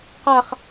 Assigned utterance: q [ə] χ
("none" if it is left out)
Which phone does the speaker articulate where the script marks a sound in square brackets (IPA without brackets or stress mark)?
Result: a